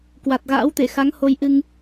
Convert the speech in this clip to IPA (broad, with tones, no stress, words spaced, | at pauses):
kwa˨˩t̚ɣa̰ː˧˥wt̪e˧˩ xa˨˦ŋ ho˧jʔɨ˧ŋ